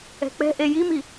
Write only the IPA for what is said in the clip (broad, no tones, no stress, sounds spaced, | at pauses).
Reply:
ɛ̤ k͡p ɛ̤ ʔ e j i m i